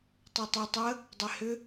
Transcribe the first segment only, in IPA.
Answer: tˤ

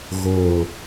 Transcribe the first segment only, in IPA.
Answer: ɣ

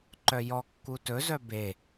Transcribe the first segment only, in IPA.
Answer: ǃ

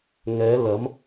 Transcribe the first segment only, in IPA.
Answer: ŋ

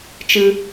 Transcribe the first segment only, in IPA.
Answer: t͡ʃ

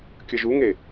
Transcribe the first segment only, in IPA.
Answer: kʲ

